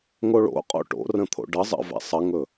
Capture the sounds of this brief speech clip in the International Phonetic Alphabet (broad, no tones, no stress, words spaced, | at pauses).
ŋoɭo̰ qʼo̰ʈo̰rə̃t̪ʰo̰ ɖə zˤə̰vɛ̰ sˤəŋɵ